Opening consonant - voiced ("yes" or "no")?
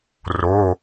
yes